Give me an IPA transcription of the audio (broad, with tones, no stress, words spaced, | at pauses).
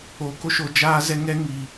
oː˧ko˦ʃo˧ d͡ʒaː˦zɛ˦ ŋɛ˦ŋiː˧